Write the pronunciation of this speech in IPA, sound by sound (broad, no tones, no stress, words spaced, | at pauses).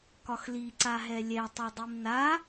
kɒxli ǀaɦɛlʲɛ tˤodˤimna